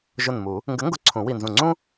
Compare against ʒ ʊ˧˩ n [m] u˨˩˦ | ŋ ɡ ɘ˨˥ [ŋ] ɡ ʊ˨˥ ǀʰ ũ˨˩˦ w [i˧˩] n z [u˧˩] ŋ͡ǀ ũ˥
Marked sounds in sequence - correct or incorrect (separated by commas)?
correct, correct, correct, incorrect